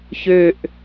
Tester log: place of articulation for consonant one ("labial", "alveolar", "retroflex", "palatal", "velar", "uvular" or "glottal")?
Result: palatal